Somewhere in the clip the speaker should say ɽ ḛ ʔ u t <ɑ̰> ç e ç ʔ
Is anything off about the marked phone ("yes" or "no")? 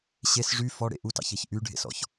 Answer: no